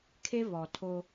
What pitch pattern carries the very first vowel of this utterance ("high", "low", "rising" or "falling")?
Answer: high